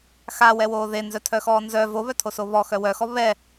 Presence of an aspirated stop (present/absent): present